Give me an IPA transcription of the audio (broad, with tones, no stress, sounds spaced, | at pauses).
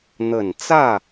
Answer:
n̪ ə˨˩ n t͡s ä˥˩